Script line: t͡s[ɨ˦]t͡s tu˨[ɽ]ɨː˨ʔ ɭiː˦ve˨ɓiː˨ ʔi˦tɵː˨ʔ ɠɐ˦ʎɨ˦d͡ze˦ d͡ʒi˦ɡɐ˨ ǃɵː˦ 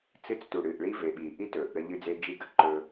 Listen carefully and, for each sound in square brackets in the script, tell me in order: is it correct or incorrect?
correct, correct

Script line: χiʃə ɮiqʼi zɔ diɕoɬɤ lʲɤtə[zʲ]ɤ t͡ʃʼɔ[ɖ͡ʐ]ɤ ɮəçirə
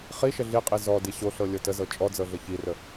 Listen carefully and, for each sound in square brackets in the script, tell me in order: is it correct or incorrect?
incorrect: z, incorrect: d͡z

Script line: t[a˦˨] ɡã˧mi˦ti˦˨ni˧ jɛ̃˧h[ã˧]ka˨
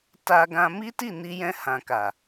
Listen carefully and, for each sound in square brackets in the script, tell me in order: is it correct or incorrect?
incorrect: a˧, incorrect: ã˨

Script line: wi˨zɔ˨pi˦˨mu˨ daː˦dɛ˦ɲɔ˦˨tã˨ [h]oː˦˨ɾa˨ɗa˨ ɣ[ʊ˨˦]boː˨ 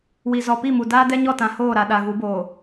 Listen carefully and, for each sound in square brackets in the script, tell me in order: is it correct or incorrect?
correct, incorrect: u˨˦

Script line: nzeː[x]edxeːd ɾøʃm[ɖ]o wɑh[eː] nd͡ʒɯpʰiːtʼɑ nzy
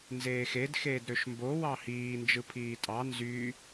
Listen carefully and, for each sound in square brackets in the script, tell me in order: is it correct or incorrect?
correct, incorrect: b, incorrect: iː

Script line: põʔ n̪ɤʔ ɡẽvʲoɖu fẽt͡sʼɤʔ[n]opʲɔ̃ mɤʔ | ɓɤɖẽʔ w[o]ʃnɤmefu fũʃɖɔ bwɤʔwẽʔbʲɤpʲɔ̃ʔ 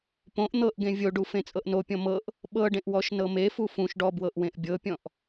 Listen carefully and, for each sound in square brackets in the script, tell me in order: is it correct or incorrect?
correct, incorrect: ɔ

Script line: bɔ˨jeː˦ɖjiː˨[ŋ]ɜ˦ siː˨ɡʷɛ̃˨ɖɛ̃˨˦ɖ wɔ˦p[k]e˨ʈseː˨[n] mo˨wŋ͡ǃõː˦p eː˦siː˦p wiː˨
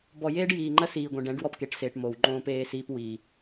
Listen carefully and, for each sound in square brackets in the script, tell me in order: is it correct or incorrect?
incorrect: ŋ͡ǃ, correct, incorrect: ʈ

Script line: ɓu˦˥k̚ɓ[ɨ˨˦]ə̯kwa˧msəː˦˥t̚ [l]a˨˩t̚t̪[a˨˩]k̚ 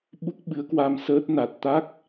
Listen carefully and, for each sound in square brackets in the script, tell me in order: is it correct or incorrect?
correct, incorrect: n, incorrect: a˦˥

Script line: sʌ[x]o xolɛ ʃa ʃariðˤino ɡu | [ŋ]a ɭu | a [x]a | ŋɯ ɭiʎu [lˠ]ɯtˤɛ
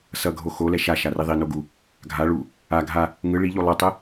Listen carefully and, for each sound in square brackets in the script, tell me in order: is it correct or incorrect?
incorrect: ɡʱ, incorrect: ɡʱ, incorrect: ɡʱ, correct

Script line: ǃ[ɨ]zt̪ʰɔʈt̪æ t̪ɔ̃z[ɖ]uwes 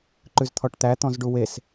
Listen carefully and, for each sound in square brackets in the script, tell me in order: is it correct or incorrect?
incorrect: ʉ, correct

